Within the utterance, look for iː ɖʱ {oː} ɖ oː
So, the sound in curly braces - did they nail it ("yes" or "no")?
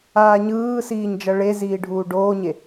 no